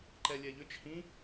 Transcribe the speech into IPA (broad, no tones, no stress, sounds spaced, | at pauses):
ǃ ɛ lʲ ɛ ʎ ʏ t͡ʃ h ĩ